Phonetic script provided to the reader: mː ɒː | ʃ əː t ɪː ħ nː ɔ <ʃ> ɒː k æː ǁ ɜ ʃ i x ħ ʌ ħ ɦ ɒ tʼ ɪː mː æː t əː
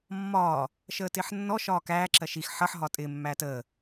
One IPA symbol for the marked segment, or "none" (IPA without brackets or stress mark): ʃ